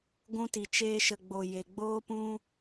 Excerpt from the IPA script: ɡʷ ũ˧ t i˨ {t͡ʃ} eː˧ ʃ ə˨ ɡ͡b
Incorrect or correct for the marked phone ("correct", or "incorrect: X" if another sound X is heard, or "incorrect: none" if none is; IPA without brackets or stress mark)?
correct